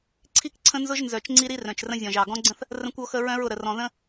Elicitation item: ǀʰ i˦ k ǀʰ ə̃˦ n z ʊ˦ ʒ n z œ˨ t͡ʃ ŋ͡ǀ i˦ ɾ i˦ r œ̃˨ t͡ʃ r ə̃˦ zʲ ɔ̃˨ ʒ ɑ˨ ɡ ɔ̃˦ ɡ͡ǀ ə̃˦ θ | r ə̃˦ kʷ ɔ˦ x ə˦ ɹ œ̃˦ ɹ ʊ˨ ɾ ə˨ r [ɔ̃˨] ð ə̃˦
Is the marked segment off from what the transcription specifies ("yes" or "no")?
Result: no